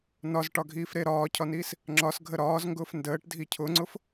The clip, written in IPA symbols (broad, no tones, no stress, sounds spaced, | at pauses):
n ɒ z ʈ ɒ ɡʱ iː f ɾ e ɾ ɒː cʰ ɒ n iː s | ŋ͡ǁ ɒ s ɡʱ ə ɾ ɒː z ŋ ɡ ʊː f n d əː ʈ dʱ i cʰ ʊ ŋ͡ǀ ʊ f